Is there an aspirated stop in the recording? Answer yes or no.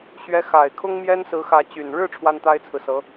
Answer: yes